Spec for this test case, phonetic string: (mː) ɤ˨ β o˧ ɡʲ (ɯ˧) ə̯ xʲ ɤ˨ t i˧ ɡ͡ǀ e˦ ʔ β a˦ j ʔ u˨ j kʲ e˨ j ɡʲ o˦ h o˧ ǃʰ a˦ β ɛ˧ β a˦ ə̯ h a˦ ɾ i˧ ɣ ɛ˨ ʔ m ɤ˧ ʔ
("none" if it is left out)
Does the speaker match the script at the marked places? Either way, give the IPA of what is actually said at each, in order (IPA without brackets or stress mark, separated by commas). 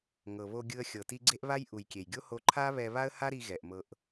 ŋ, ɯ˧